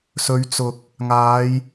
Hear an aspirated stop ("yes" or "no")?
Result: no